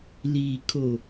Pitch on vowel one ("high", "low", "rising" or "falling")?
low